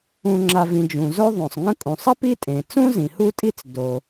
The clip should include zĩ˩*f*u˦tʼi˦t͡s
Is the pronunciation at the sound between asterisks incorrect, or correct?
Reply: incorrect